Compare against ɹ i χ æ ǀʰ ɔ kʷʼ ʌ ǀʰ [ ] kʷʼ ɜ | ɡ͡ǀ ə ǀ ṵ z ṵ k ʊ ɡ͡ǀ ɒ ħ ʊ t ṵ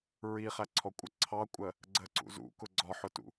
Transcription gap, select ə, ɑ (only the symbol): ɑ